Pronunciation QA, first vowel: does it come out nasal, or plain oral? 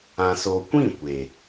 nasal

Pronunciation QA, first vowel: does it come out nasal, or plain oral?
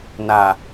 oral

